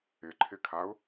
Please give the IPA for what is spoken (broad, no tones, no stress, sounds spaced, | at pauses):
ɪ ǃʰ ɪ kʰ a ʊ̯